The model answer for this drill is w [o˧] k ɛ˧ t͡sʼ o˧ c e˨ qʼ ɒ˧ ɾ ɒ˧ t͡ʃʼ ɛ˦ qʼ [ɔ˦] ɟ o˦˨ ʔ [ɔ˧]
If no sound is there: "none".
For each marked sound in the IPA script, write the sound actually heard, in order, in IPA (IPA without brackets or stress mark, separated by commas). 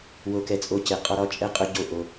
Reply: o˧, ɵ˦, o˧